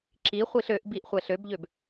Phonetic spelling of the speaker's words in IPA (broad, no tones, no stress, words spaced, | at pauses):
ǁi χʷiɬøʔbiʔ χʷɛɬøbʎøb